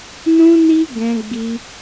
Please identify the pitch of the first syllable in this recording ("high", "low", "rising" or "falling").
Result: high